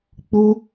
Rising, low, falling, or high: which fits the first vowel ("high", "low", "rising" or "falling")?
high